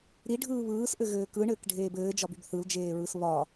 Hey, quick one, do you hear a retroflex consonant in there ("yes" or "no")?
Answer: yes